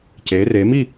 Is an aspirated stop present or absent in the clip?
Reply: absent